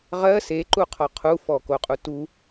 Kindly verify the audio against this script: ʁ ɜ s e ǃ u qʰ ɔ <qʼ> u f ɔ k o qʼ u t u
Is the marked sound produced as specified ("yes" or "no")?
no